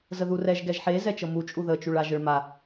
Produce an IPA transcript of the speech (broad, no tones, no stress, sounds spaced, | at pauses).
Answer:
z ə ð u r ɛ ʒ ɡ ɛ ʒ ħ e z ɛ t͡ʃ ɤ m u t͡ʃʼ u ð ə t͡ʃ u ɭ a ʒ ə ɭ m a